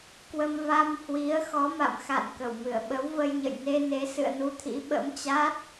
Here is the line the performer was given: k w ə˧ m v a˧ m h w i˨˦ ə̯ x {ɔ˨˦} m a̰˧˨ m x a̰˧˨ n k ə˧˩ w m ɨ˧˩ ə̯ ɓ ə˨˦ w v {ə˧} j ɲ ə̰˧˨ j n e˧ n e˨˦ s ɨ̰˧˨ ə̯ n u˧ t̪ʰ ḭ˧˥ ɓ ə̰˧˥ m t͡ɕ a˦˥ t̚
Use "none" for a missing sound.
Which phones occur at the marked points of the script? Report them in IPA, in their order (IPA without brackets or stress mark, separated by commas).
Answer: ɔ˨˦, ə˧